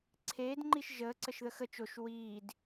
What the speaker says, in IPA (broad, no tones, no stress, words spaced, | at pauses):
ǀʰeːdŋ͡ǃiʃ ʒəːǀəʃðə xə t͡ʃoʃ wiːd